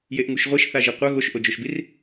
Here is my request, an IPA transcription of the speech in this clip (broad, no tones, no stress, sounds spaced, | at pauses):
j e ʔ ŋ u ʃ ʁʷ i ʃ θ a ʒ i qʷ ʌ ɣ o ʃ ʔ o d͡ʒ o ʃ b i r